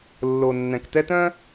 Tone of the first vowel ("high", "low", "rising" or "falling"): low